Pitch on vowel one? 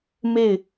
falling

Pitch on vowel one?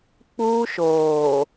high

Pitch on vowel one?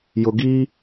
low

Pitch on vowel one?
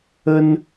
high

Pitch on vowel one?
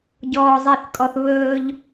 low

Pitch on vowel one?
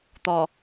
low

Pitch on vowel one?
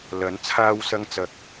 rising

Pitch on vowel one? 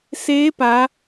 rising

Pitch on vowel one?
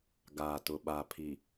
low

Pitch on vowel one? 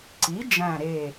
rising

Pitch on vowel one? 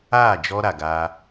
falling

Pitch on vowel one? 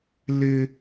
high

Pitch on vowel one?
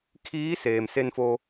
rising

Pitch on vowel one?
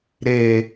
low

